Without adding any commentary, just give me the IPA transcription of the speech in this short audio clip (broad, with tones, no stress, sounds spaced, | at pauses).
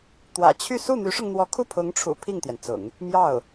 t̪ w ä̰˨˩ t͡ɕʰ y˥˧ s u˥˩ n̪ y˧˥ ʂ ʊ˧ ŋ n̪ w ɔ˧˥ kʰ u˥˩ pʰ ʊ˧˥ ŋ ʈ͡ʂʰ ṵ˨˩ pʰ i˥˩ ŋ t̪ j ɛ˩ n t͡s ʊ̰˨˩˦ ŋ | m j ɑ˥˩ ʊ̯